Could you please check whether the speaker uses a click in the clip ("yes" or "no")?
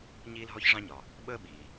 no